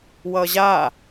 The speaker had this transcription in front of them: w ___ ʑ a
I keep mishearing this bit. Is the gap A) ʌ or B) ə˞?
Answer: A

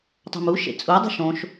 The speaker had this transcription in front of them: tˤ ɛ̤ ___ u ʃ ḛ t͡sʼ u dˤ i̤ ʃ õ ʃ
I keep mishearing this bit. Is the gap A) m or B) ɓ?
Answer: A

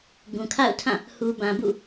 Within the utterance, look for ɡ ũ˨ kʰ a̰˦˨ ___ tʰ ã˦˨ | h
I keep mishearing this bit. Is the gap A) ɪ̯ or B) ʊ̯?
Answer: B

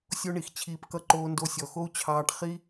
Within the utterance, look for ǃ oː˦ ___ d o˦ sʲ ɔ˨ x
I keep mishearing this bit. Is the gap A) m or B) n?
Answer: B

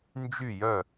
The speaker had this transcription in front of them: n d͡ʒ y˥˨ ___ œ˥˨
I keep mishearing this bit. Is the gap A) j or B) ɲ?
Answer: A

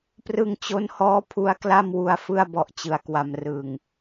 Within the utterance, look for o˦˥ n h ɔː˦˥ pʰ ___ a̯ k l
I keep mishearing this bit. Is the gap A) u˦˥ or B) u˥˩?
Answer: A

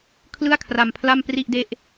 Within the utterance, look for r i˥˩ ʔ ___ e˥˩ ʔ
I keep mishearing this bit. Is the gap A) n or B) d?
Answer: B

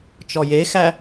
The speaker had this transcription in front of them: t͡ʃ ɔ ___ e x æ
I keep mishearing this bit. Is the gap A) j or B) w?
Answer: A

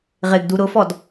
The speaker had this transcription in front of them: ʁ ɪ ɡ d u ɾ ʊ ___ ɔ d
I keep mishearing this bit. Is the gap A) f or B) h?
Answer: A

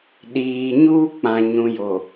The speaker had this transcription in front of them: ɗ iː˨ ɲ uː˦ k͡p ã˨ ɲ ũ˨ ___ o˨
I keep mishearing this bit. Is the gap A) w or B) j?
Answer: B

